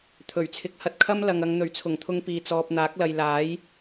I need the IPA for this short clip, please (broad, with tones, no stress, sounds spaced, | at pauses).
t̪ʰ ɵ˨˩ ɥ t͡sʰ ɪ˨ k̚ h ɐ˧ t̚ kʰ ɐ˥ m l ɐ˨ ŋ ɐ˨ ŋ n̪ ɵ˨˩ ɥ t͡sʰ ʊ˨˩ ŋ t̪ʰ ʊ˧ ŋ p iː˨ t͡s ɔː˨ p̚ n̪ aː˨˥ k̚ l ɐ˨ j l aː˨˥ j